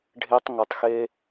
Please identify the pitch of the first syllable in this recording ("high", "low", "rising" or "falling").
high